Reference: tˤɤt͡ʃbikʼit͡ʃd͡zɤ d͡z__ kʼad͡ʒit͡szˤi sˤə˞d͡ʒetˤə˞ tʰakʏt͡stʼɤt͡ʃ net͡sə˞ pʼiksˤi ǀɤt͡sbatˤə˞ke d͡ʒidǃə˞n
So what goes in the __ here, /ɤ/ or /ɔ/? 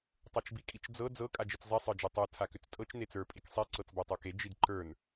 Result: ɤ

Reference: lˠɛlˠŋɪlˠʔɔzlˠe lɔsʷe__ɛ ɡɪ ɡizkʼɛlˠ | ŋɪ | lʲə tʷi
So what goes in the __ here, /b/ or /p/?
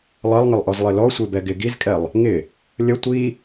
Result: b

